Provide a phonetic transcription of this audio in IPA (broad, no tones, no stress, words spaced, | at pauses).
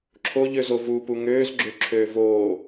ǁʰoʎøzo vupu ŋøːzɡ͡ǁøǁʰøː voː